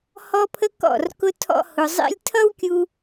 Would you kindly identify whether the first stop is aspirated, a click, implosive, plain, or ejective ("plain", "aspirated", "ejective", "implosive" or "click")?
aspirated